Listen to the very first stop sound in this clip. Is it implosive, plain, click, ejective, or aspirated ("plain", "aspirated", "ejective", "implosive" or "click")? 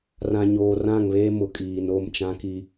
ejective